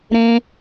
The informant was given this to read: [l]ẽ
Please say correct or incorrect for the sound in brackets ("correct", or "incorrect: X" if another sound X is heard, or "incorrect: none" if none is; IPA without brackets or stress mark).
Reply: incorrect: ɾ